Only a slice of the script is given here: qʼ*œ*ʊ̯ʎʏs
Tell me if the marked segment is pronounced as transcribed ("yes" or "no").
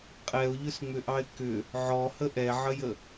no